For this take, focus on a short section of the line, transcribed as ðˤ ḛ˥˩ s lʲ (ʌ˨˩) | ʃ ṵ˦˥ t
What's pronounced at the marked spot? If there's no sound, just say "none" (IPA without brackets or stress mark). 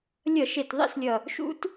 ʌ˨˩